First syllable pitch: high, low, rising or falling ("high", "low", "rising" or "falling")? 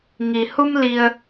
low